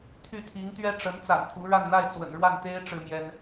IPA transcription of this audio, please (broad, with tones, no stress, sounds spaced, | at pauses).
t̪ʰ y˥˩ t̪ʰ i˧˥ ŋ t̪ ɥ ɛ˥ ʈ͡ʂ ə˧˥ n t͡s a̰˨˩ n t̪ʰ u˧˥ ɻ a˥˧ n n̪ a˥˩ ɪ̯ t͡s w ə̰˨˩ n ɻ w a˥˩ n t̪ e˥ ɪ̯ ʈ͡ʂ ɻ̩˥ m j ɛ˥ n